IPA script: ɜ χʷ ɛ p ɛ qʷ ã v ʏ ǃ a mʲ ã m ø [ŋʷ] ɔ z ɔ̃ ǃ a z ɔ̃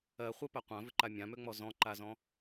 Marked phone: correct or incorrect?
incorrect: ŋ͡m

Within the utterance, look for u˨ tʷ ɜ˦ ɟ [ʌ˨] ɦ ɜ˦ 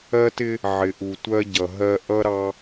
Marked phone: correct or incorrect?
correct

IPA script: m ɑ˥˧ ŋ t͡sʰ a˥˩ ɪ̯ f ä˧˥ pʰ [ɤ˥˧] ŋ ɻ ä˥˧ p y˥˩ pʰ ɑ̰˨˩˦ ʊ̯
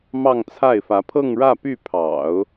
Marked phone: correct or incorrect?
correct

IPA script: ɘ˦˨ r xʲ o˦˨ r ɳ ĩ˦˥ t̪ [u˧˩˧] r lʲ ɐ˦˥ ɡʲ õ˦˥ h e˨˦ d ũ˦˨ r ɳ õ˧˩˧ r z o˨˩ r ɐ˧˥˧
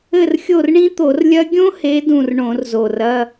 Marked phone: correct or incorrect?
incorrect: o˧˩˧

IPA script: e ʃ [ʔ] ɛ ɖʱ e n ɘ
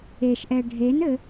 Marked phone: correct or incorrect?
correct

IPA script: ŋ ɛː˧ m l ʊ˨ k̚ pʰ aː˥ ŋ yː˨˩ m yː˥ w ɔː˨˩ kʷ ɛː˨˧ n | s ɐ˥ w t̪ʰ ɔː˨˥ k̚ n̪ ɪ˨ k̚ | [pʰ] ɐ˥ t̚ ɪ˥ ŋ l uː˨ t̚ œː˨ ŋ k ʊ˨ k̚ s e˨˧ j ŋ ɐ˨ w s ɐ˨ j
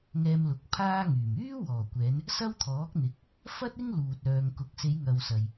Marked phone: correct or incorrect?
incorrect: f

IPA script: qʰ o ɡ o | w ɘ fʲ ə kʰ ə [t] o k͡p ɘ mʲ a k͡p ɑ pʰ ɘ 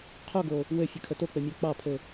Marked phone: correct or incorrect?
correct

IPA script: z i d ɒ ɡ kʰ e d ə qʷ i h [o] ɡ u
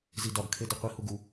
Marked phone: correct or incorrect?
incorrect: u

